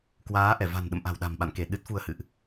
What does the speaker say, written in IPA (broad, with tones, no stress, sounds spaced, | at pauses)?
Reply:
k w aː˨˦ ʔ ɛ˧˩ v a̤˨˩ n ɗ ə̰˧˨ m ʔ a̤˨˩ w ɗ a̤˨˩ m ɓ a̰˧˨ n k e˧˩ ɗ ɨ˦˥ t̚ f u˧ ə̯ h ɨ̰˧˨ ʔ